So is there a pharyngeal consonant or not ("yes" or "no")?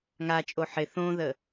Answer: yes